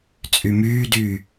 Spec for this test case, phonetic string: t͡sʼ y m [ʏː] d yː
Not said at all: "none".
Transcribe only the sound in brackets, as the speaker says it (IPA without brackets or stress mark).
yː